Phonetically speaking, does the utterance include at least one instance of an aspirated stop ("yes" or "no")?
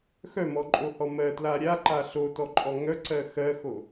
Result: no